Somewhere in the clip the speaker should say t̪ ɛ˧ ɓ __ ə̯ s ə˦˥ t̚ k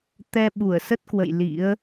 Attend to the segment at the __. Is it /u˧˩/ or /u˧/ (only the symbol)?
u˧˩